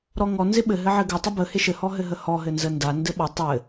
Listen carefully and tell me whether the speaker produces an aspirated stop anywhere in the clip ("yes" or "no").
no